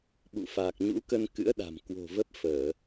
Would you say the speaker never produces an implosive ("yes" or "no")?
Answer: no